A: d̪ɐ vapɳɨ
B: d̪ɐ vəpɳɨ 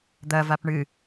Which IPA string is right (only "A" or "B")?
A